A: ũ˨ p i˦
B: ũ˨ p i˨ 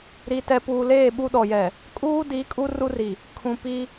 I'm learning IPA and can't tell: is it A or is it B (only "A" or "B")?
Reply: A